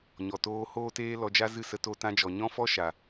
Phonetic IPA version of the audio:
ɲ ɔ˨ t oː˧ h oː˦ t eː˦ l ɔ˧ d͡ʒ a˦ z ɨ˦˨ s ə˧ t o˧ t ã˧ d͡ʒ ɔ˨ ɲ ɔ̃˦ f ɔ˦ ʃ a˨

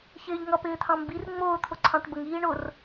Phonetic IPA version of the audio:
ç ɪː ʎ ŋ ʌ p ɪː t̪ʰ ɑ̃ m b i r ŋ͡m ʊː t̪ʰ ʊ ǀʰ ɑ̃ ʈ b ə ŋ iː ɳ ʊ r

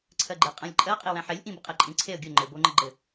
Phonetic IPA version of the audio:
ǀʰ ɜ ɡ͡ǃ e qʼ æ̃ lʲ ǃʼ ɜ qʼ i w æ̃ ħ e lʲ ʔ ĩ b ə qʼ e ǃʼ ĩ ǀʰ e ə̯ ɡʲ o ŋ͡ǃ ɘ b o ŋ͡ǃ ə ɡ͡ǃ ɘ

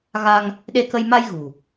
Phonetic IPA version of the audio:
ɣ a˧ ŋ | ɗ e˧ k ə˧ j m a˧ j ɣ ṳ˨˩

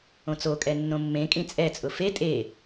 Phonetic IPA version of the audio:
õ t͡s o kʼ ɛ nː õ mː ẽ kʼ ĩ t͡sʼ ɛ t͡sʼ ʊ f e tʼ e

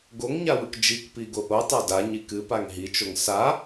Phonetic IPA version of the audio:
ɡ o ŋ ɲ a w ɨ k d͡ʒ i k p i ɡ o ʔ o tˤ a d a ɲ i k ɨ p a ŋ ɦ i t͡ʃ o ŋ s a

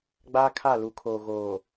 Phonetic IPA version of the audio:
ɡ͡b aː˦ kʰ a˦˨ l u˨˦ kʰ oː˨ ɣ oː˨

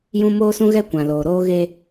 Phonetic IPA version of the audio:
j ũ˦ m oː˦ s ũ˦ ɣ ɛ˦ kʷ ã˨ l oː˨ ɾ oː˦ ɣ e˦

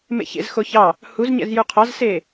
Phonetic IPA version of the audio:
m ḛ ç ḛ z x o ç ɑ | h u z ɲ ɛ̰ z j u qʰ ɑ z s eː

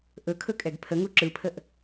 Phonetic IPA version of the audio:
ʔ ɵ kʰ ɵ kʼ ɛ ɡ pʰ ə ŋ u ǁ ɯ pʰ ə ʔ

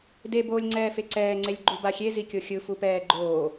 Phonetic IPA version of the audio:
d e b oː lʲ ŋ͡ǀ ɛː f e ǀ ɛː ŋ͡ǀ e lʲ ɡ͡ǃ u b a xʲ e z i kʲ o xʲ ɯ f u p ɛː ɡ͡ǃ oː

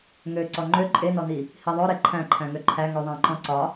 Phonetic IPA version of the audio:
ŋ ø ǀ ɔ ŋ͡ǃ ø ǃʼ e n ɔ n i | h i ðˤ ø ɾ e ǃʰ æ̃ ǃʰ æ̃ ŋ ø ǃʰ æ ŋ ø ðˤ æ̃ ǃ ɔ̃ ǀ ɒ

